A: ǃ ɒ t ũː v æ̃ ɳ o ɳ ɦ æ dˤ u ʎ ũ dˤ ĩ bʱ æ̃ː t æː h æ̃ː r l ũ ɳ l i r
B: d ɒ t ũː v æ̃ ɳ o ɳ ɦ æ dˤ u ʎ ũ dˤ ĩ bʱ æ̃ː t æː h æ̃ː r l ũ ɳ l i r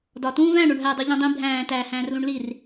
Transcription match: B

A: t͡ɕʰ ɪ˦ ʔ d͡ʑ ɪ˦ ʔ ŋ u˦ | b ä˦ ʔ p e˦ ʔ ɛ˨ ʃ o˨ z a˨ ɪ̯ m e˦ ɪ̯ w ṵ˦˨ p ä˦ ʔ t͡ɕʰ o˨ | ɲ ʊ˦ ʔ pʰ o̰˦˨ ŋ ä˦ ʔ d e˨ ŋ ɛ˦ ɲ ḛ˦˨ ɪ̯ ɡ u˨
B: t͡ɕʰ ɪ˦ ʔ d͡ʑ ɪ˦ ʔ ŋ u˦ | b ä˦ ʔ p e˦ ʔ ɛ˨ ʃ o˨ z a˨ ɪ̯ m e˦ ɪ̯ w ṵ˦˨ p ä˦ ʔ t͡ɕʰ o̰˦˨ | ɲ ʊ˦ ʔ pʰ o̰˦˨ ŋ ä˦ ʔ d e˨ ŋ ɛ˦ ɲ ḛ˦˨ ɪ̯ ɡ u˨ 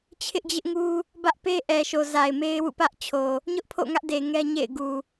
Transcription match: A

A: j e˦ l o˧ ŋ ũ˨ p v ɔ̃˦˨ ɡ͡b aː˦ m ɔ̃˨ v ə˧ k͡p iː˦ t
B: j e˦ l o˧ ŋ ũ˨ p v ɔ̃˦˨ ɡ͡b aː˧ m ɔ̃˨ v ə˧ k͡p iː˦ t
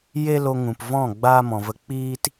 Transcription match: A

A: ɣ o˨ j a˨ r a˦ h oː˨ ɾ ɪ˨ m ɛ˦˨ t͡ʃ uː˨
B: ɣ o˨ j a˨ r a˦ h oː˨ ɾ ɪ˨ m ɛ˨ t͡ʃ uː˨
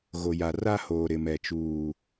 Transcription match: B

